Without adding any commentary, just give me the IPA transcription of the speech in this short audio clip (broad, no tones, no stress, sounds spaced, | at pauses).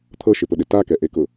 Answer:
t̪ʰ ɤ ʃ ɪ p ʊ ɗ ɪ t a k ɛ ʔ e k ʊ